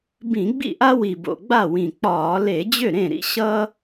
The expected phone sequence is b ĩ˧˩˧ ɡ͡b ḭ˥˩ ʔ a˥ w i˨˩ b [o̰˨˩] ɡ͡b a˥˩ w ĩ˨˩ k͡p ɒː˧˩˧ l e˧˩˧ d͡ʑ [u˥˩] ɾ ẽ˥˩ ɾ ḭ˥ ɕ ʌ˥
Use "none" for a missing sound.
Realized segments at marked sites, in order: o̰˨˩, ʏ˥˩

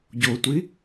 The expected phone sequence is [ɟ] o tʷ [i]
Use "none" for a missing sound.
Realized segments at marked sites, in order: ɟ, i

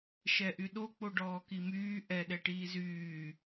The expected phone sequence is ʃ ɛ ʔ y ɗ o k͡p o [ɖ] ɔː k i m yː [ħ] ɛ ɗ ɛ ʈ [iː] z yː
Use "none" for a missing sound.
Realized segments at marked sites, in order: ɖ, ʔ, iː

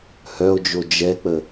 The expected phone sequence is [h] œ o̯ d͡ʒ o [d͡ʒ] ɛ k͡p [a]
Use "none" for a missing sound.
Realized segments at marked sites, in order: h, d͡ʒ, ə

